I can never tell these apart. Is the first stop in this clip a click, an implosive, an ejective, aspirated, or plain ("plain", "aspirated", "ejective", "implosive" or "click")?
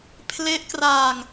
aspirated